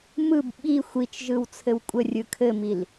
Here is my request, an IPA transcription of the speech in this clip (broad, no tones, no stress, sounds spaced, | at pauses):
m ɯ b ɓ i xʷ i t͡ʃ ʒ ɯ w t͡sʰ ɘ w kʷʼ ə rʲ ɯ kʰ ɘ m i l